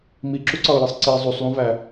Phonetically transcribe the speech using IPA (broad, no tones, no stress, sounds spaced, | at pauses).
m i ǁ u ǀ ɒ ʊ̯ j e sˤ ǀ i zˤ u sˤ lˠ ũ v æ